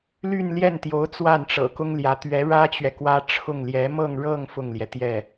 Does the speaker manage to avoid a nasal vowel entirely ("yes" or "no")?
yes